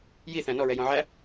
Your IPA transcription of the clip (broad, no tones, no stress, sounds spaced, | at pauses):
j i θ æ̃ n ɔ ɹ ɛ j ɔ̃ ʕ æ